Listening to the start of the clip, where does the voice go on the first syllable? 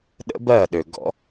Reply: high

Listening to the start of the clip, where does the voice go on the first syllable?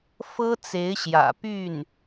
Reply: high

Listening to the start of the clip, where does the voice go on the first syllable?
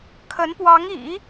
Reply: rising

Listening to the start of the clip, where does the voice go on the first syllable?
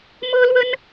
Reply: high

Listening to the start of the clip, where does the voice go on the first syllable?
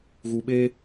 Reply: low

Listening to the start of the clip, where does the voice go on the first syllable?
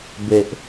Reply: low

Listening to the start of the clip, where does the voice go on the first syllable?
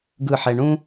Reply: falling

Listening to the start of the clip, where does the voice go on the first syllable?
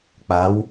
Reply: rising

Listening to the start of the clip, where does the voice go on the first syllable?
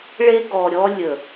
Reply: high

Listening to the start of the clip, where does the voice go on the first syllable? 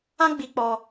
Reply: high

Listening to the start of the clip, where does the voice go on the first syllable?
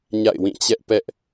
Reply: falling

